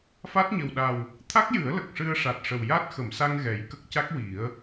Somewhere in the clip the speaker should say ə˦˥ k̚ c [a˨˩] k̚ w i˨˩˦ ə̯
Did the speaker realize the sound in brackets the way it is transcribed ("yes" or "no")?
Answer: no